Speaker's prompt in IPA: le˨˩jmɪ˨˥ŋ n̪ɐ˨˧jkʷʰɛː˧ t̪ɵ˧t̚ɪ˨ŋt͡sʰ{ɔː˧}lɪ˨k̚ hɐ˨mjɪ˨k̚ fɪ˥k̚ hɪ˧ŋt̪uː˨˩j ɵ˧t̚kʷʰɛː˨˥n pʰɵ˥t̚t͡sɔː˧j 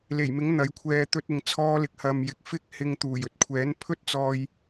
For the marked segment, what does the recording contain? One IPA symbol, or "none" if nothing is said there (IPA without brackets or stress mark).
ɔː˧